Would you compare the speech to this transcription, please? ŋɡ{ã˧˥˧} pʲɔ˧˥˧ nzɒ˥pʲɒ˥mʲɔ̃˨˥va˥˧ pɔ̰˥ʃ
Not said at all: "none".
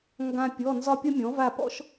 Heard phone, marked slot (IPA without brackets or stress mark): ã˥